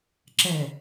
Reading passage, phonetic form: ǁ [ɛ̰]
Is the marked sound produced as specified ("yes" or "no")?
no